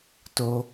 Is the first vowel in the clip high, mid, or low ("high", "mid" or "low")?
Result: mid